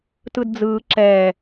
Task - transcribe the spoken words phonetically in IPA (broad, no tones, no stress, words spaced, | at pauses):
tɯdd͡zɯː ǁɛː